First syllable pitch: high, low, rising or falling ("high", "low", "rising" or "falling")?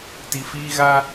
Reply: low